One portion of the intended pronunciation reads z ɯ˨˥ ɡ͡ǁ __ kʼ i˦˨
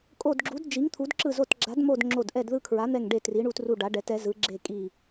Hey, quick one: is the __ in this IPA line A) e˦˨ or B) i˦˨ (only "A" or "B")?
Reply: A